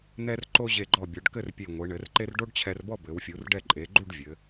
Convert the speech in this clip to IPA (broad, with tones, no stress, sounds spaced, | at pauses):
n̪ ɛ˧ r ǃ o˧ ʑ e˧˩ ɡ͡ǃ ɔ˧˩ bʲ ɔ˩˧ ɖ k ɘ˥˧ r pʲ e˧˩ ŋʷ e˩˧ ɳ ɘ˩˧ r ǃ e˥ r ɖ o˥ ɖ t͡ɕʰ ɛ˧ r b ɔ˥˧ b ɘ˩˧ w fʲ u˩˧ r ɖ ɛ˥˧ ǃʼ e˩˧ ɡ͡ǃ u˥˧ ɖ vʲ ɘ˩˧